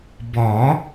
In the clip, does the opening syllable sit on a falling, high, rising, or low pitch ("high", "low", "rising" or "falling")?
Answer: rising